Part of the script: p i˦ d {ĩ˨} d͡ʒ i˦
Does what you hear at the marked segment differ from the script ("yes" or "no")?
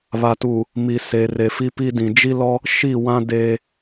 no